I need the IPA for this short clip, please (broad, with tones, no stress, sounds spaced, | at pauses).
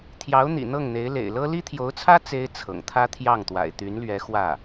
t̪ʰ j ɑ˧˥ ʊ̯ n̪ ḭ˨˩ n̪ ɤ˥˩ ŋ n̪ e˧˥ ɪ̯ l ḛ˨˩ ɪ̯ l ɤ˥ l i˥ t̪ʰ j o˧˥ ʊ̯ t͡sʰ ä˥ t͡s e˥ ɪ̯ t͡sʰ ɤ̰˨˩ ŋ t̪ʰ ä˥ t̪ʰ j ɑ˥˩ ŋ t̪ w a̰˨˩ ɪ̯ t̪ y˧˥ n l ɥ ɛ˧˥ x w ä˥˩